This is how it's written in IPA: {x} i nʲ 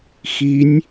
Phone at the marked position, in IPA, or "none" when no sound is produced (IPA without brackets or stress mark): x